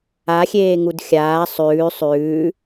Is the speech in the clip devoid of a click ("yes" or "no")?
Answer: yes